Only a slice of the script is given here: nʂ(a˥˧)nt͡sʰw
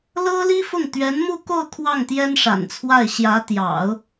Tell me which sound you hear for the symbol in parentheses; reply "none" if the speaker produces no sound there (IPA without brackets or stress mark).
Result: a̰˨˩